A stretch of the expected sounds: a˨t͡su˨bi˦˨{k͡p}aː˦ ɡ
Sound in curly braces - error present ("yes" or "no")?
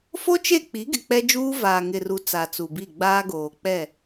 yes